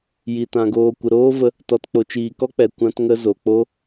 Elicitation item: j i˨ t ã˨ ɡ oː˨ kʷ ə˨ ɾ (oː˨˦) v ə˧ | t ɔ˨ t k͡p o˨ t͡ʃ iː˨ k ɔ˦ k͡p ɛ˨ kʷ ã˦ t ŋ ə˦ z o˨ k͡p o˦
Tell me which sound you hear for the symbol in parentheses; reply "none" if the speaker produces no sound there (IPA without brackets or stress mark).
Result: oː˦